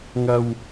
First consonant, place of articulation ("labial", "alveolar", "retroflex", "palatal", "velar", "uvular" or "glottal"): velar